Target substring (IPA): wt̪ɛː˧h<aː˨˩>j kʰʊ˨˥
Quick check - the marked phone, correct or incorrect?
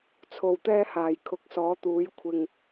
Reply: correct